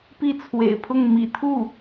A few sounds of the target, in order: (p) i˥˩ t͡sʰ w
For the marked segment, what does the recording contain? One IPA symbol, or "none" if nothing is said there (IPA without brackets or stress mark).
p